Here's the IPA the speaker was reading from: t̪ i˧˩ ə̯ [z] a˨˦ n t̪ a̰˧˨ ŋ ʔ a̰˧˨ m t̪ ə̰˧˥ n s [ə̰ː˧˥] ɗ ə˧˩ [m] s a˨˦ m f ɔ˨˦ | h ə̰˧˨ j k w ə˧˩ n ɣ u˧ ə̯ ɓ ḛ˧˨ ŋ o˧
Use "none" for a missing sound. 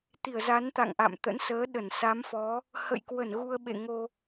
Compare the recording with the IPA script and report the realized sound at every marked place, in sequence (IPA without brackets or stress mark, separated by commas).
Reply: z, əː˨˦, n